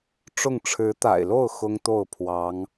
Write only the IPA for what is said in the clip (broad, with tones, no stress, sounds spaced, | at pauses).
ʈ͡ʂ ʊ˥˩ ŋ ʈ͡ʂʰ ɻ̩˧˥ t̪ a̰˨˩ ɪ̯ l o˥˩ ʊ̯ x ʊ˥ ŋ t̪ o˥˩ ʊ̯ pʰ w ɑ˧˥ ŋ